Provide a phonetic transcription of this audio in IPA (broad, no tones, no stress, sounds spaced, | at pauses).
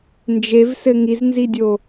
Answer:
n d͡ʒ e v s ɘ ŋ i z n z i dʲ o